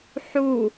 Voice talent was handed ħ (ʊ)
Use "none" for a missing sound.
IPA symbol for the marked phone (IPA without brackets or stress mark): u